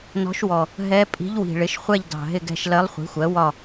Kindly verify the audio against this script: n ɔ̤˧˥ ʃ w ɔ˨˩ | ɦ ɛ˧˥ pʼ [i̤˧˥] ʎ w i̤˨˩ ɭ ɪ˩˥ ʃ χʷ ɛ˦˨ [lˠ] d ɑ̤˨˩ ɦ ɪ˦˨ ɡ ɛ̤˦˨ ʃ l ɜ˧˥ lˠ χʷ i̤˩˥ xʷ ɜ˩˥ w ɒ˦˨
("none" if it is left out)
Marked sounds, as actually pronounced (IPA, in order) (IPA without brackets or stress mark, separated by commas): i̤˧˥, ʎ